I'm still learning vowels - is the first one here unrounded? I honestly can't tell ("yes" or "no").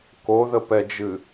no